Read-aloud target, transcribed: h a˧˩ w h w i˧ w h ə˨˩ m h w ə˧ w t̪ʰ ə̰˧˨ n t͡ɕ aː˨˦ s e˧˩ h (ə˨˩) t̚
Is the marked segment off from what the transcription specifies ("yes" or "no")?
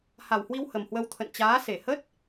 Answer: yes